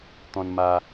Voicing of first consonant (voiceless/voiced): voiceless